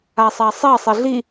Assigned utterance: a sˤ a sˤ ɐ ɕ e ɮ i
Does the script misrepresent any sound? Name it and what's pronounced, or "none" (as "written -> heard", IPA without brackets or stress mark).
ɕ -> sˤ